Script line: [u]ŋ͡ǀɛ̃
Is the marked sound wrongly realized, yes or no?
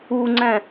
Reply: no